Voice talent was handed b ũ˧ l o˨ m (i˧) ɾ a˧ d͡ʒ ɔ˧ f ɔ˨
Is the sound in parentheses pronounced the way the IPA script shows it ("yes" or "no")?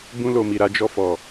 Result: no